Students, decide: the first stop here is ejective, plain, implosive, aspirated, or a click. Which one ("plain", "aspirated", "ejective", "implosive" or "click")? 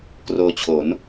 plain